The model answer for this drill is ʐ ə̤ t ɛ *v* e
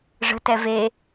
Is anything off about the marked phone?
no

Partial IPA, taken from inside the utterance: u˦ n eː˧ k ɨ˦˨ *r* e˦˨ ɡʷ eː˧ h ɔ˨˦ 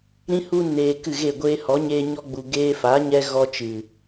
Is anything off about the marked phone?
yes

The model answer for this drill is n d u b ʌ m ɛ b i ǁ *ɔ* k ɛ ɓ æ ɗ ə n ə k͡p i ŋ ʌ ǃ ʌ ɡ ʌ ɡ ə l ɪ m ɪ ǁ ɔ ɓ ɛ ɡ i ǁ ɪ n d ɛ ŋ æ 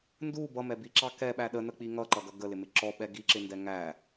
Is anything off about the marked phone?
yes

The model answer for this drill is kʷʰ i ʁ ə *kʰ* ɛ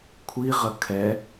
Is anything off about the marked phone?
no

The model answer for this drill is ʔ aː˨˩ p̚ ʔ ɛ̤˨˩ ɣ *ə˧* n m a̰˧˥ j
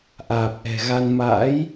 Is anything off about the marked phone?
yes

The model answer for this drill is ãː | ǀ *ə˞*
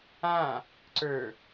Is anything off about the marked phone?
no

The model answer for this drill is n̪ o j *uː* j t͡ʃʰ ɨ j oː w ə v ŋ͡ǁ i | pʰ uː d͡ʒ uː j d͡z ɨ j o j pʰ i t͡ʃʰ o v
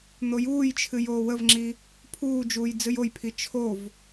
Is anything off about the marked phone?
no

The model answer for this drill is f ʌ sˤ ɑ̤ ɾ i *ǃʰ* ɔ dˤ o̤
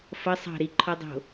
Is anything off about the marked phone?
no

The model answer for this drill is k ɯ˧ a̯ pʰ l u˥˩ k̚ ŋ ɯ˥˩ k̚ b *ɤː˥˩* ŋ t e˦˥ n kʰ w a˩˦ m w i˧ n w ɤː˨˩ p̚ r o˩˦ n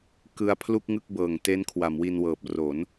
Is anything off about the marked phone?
yes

